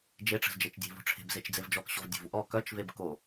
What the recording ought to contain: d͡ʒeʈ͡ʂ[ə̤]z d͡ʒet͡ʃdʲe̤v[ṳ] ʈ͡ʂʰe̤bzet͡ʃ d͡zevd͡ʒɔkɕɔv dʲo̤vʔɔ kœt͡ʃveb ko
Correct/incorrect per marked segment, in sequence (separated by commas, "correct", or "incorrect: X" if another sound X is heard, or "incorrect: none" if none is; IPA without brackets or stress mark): correct, incorrect: o̤